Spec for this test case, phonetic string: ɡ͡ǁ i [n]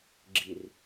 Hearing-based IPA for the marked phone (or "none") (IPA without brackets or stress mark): r